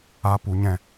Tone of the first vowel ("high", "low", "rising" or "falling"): high